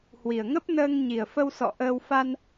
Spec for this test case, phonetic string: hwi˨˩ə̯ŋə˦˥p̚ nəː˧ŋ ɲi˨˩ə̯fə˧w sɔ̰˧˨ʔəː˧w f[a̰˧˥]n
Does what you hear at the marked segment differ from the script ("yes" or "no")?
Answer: yes